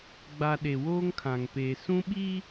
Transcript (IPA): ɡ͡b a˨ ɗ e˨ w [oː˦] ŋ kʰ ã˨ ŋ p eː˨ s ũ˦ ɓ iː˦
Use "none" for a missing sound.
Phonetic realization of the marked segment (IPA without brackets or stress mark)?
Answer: oː˦